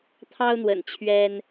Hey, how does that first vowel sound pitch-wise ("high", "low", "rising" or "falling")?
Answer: high